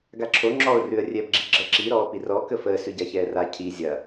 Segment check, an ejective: absent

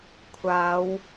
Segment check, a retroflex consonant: absent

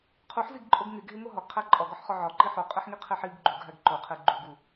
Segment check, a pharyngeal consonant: present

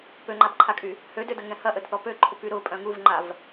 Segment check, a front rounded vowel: present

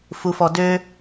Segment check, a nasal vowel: absent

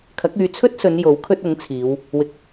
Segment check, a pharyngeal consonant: absent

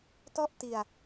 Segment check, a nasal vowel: absent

